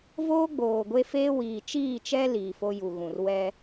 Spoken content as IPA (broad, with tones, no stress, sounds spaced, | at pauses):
v oː˦ ɡ͡b oː˨ ɡʷ e˦ f eː˦ w iː˨ t͡ʃ iː˦˨ t͡ʃ ɛ˦ l iː˨ f o˦ j u˨ ɣ ũ˨ r w ɛ˦